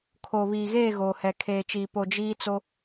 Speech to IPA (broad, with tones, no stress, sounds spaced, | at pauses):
kʰ oː˨ β iː˨ ɣ eː˦˨ ɣ oː˨ h ɛ˨ kʰ eː˨ t͡ʃ iː˨ p o˨ d͡ʒ iː˦ t͡s o˦